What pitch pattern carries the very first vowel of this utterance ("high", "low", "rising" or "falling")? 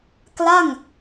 falling